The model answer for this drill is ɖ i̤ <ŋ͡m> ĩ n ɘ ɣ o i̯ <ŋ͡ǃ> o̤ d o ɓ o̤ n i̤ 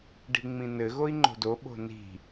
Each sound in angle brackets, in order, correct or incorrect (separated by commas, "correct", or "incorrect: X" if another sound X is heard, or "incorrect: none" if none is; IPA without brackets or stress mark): correct, correct